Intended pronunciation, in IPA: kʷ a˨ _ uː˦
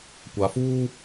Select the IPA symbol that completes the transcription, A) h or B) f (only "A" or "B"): B